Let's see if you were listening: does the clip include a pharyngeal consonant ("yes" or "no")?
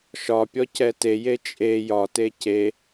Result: no